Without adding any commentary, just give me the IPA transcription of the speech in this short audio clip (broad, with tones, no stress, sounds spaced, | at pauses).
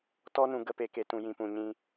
t ɔ˦ n ũ˧ ɡ ə˦ p e˧ k e˧ t ũ˧ j ĩ˧ p ũ˧ ɲ ĩ˦